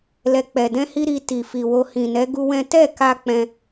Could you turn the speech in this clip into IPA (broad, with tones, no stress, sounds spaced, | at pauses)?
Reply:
l ɛ˨ k͡p ɛ˨ d ɛ̃˧ h i˧ ɾ i˧ t i˨ f i˨ w o˧ h ĩ˨ n ɛ˨˦ ɡ u˦ w ɛ̃˦ t ɛ˦˨ k a˧ k͡p ɛ̃˧